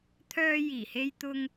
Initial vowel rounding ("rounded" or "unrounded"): rounded